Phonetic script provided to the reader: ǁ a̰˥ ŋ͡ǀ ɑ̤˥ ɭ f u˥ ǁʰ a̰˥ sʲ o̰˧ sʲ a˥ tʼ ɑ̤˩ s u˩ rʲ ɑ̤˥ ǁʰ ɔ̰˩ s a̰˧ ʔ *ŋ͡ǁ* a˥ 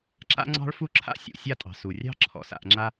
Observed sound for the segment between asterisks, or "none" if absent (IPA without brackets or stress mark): ŋ͡ǁ